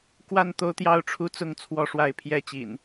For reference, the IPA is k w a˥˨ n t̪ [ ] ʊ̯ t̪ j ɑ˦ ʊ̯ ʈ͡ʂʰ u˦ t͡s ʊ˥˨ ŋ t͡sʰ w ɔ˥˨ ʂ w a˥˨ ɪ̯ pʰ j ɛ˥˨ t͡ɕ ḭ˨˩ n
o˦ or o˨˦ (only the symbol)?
o˦